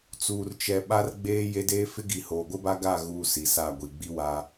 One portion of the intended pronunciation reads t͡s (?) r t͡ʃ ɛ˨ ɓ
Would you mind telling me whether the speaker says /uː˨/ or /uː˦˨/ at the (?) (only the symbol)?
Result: uː˨